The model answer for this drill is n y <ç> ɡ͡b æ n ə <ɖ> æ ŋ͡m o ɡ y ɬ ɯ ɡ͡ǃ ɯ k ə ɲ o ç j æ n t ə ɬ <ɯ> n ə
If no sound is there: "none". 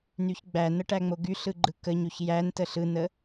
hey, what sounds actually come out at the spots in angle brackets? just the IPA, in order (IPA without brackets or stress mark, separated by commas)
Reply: ç, ʈ, ɯ